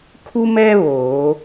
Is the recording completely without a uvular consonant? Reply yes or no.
yes